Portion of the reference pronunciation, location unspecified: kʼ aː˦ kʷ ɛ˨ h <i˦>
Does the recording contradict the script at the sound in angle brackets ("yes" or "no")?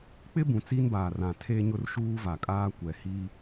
no